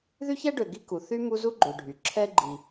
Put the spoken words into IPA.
ð y˥ ç ɛ˥ ɖ ø˨ ɡ i˦ k u˩ θ y˦ m u˦ z u˥ ɡ͡ǃ ø˨ ɖʱ y˩ ǁʰ ɛ˦ ɡ͡ǃ i˨

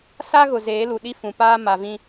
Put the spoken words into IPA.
s a˦ ɣ ʊ˨ z eː˨˦ l u˨ ɗ i˦ f ũ˨ p aː˦ m a˨ v ĩ˦

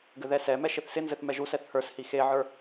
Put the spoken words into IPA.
ɡ ɘ ð ɛ s ɛ m ɛ ʃ ɪ θ s ɪ n z ɘ θ m ɛ ʒ u s ɛ θ h ə˞ s h i x e ʕ ə˞

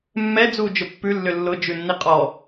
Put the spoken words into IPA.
mː ɛ d͡z uː d͡ʒ ʊ pː ʉ lː ʏ lː ʊ d͡ʒ ʉ nː i qʼ ɔ

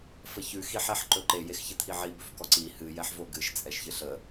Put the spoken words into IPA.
f ə ç ʉ x i ħ ɛ ħ ǃ ɵ ǃ e j e x ç ɘ t̪ʰ i ʕ i b ɵ f k ɔ ǀ i h ɨ j ɛ ħ v o ɡ ɨ ʃ t͡sʼ ɛ ʃ ç ɨ ɬ ə

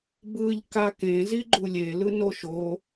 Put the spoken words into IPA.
b ɯ ʎ k a k ẽ z i ɡ͡ǃ u lʲ e l ɯ n o ʃ o

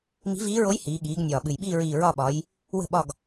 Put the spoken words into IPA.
m i̤˧˥ v iː˧˥ ɹ o˧˥ j h iː˩˧ ɠ iː˩˧ ɡ nʲ ɒː˨˩ ɓ ɨ˨˩ j ɓ iː˦˨ ɹ iː˨˩ ɹ ɒ˦˨ ɓ ɒ˩˧ j | w ə̤˦˨ ɓ ɒ˦˨ ɡ

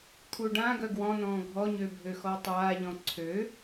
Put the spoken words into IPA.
t̪ʰ u ɖ ã ɡ œ ɡ w ɔ̃ n̪ ɔ̃ː ɡʱ ɔ ɲ ø bʱ ø x ɔ tˤ aː ʎ ɔ̃ ǀʰ ø

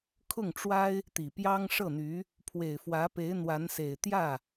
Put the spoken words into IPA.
kʰ ʊ˥˩ ŋ ʈ͡ʂ w a˥ ɪ̯ | t̪ i˨˩ p j ɑ˥ ŋ ʂ ɤ˥˩ n̪ y˧˥ | pʰ w e˨˩ ɪ̯ f w ä˧˥ p e˧˥ ɪ̯ n̪ w a˧˥ n s e˨˩ ɪ̯ t̪ j ä˥˩

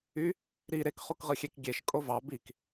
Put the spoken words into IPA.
y | ɾ i ɾ e k χ u k ʁ ɯ xʲ e k ɡʲ e ʃ kʼ o v ɑ b i k

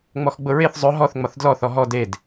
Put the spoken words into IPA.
ŋ͡m ɔ x ɡ͡b ʊ ɹ e θ zˤ ʊ ɦ ɔ θ ŋ͡m ɒ θ d l ɔ θ ɔ ɦ ɔ d e d

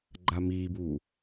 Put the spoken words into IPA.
ɡ͡ǃ a m iː b uː

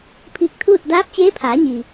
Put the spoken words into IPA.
pʰ iː˧ k̚ t̪ʰ uː˥˨ t̚ d aː˧˥ p̚ t͡ɕ eː˧˥ pʰ aː˩˧ ɲ i˩

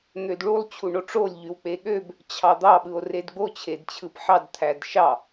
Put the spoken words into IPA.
n̪ ø d ɭ u lˠ t͡ɕʰ u ɳ o ʈ͡ʂ o lʲ ʎ y w k͡p e ɠ ø b | t͡ɕʰ ɑ d̪ ɑ ɓ ɯ o̯ r e d ɡ͡b o t͡ɕʰ e d t͡ɕʰ ɯ p ħ ɑ d t̪ʰ æ d ʃ ɑ

